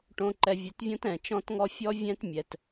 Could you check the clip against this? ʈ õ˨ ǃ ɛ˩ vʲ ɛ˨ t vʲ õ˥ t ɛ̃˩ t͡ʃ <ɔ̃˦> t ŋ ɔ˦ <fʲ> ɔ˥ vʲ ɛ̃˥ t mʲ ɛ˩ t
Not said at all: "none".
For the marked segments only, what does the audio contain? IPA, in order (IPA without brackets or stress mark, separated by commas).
ɔ̃˦, fʲ